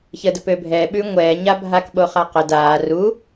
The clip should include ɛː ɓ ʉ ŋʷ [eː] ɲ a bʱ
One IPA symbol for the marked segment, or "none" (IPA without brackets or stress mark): ɛː